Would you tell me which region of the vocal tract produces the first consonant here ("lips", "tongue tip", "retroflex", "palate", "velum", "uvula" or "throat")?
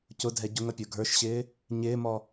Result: palate